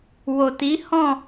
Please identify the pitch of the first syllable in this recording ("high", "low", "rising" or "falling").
low